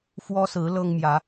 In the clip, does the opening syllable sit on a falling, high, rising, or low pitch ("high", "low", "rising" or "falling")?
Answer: high